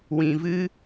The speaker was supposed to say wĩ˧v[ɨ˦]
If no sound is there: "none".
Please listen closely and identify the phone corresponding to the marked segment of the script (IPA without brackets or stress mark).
ɨ˦